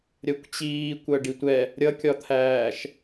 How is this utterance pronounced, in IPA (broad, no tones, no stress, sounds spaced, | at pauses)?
ɾʲ ɜ kʷ t͡ɕ iː kʷ ɜ ɖ i tʷ ɛ | ɾʲ ʌ kʲ ɒ t̪ʰ æː ʃ